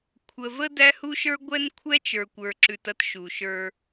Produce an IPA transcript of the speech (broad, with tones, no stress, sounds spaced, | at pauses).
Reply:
kʷʰ ə˨ v ə˦ d æ˦ h u˦ ʃ ə˞˦ ɡʷ ɛ˦ n kʷʰ ɛ˦ t͡ʃ ə˞˨ kʷ ə˞˨ ǁ ʉ˨ t ɐ˦ t ʃ u˨ ʃ ə˞˦